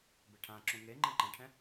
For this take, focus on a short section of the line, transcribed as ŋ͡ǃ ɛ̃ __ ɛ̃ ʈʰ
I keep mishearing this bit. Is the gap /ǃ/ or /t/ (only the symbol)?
ǃ